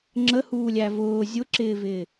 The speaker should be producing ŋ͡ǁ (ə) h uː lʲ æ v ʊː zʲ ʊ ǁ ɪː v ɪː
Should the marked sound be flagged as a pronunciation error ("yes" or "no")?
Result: no